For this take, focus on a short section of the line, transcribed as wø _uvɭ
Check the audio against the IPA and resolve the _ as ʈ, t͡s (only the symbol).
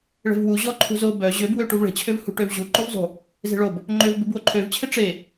ʈ